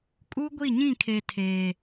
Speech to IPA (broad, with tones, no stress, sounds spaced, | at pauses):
kʼ u˦ ɡʷ i˦˨ ɲ ĩ˦˨ kʰ e˨ tʰ eː˨